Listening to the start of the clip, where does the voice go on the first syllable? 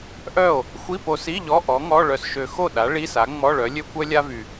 falling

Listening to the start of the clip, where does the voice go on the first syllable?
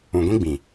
low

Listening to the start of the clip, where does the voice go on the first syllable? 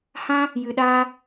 high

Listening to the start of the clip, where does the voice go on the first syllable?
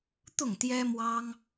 falling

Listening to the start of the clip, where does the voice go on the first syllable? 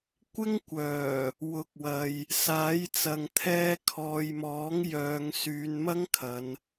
high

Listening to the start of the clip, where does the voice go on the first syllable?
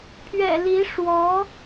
low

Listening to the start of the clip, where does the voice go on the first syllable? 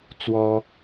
high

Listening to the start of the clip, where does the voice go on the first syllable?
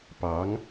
rising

